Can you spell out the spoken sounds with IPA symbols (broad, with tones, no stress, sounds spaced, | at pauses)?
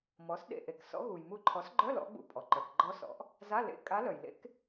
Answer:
m ɔ˩˥ s ɗ ḛ˧˩ ʔ e˩ k s ɔ̰˧˥ ɣ u˩ j m u˧˩ ǃʰ ɔ˩˥ s ɡ͡ǃ œ˧˥˧ l ɔ̰˧˥ ɡ͡b ṵ˧˩ pʼ ɔ˩ ǃ œ˩ k ɡ͡ǃ ɔ˧˥ s ɔ̰˩˥ ʔ | z a˧˥˧ l ḛ˧˥˧ kʼ a˧˥ l œ˩ j l ḛ˧˥ k